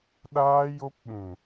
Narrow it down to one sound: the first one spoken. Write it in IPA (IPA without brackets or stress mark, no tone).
ɗ